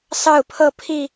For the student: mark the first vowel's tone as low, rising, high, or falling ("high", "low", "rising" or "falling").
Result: falling